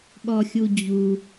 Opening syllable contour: high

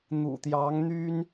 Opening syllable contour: low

